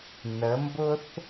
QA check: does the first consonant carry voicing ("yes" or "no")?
yes